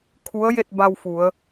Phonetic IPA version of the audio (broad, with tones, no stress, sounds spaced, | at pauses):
kʰ u˧˥ ə̯ j e˥˨ t̚ b a˧ w f u˩˧ ə̯